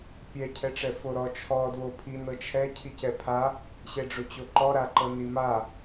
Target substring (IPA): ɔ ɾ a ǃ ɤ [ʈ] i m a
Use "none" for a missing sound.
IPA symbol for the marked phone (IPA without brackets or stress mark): n